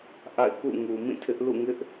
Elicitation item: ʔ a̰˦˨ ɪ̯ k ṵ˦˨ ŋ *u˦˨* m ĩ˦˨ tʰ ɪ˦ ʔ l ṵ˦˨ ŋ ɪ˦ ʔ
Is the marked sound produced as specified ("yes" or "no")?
no